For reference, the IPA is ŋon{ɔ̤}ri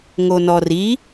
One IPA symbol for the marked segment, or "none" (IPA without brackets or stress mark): ɔ